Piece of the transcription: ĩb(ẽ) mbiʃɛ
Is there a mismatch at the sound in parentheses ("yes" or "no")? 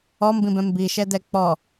yes